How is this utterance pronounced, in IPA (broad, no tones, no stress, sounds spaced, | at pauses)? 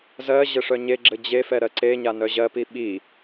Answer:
z ɜ ʑ ɘ ʂ œ ɲ e ɡ͡ǁ ɘ d͡ʑ e f ɛ ɾ ɜ ǀ e ɲ a n œ ʑ ɜ p i ɓ i